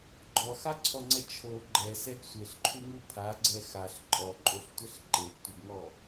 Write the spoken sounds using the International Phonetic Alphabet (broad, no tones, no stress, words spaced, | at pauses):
ɡ͡ǃɔxaǀʰɔŋ͡ǀɛ t͡ʃʰo ɡ͡ǃɛsɛɡ sʷeɬǃʰuŋu pʰaɡ͡ǀɛ xaɬ ǃʼɔǃʼoɬtʷɛɬ ǃeɡtʷeɡŋɔ